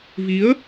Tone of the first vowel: rising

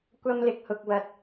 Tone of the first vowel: high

